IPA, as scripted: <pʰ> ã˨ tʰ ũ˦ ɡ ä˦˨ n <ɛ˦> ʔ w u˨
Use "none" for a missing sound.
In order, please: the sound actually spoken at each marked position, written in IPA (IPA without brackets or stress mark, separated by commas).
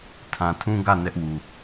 tʰ, ɛ˦